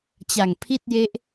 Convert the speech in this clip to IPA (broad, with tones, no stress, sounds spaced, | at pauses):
t͡ɕ a˨˩ ŋ pʰ i˥˩ t̚ j e˦˥ ʔ